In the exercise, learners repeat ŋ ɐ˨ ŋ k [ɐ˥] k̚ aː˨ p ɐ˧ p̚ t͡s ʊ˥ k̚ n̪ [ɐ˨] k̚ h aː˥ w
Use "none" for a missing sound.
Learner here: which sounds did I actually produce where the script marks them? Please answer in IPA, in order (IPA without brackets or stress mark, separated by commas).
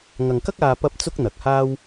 ɐ˥, ɐ˨